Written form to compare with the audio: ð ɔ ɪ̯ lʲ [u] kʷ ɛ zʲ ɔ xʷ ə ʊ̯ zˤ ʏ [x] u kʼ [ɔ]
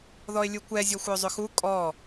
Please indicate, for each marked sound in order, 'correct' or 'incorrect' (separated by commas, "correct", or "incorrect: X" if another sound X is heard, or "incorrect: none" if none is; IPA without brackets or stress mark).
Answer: correct, correct, correct